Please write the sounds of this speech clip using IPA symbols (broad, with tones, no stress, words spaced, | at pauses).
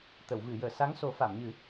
t̪ə˨˩˨wvɨ˨˩˨jəː˨˩˨ sa˧˥ŋso˨˩˦ fa˨˩˨mɲɨ˨˩˦